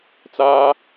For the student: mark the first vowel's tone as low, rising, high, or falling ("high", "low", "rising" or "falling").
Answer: high